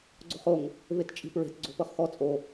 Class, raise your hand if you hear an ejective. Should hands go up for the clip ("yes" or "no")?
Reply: yes